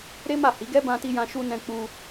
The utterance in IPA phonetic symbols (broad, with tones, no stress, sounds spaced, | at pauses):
ɾ e˦ m a˦˨ h i˨˦ ɡ ɛ˦ b ã˧ t i˧ j ã˧ ʃ u˧ n ɛ̃˧ k͡p u˧